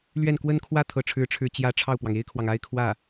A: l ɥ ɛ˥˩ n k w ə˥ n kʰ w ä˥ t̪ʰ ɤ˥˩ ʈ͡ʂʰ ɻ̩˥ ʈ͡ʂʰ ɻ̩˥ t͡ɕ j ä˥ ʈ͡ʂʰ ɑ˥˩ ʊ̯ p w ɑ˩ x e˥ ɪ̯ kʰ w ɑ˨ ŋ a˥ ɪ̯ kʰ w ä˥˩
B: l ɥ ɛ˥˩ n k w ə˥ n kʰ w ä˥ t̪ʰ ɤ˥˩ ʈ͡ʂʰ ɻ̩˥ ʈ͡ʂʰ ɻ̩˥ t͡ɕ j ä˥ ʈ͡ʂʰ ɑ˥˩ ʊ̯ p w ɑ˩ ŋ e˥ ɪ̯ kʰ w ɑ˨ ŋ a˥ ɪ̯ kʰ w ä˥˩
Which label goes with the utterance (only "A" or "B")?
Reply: B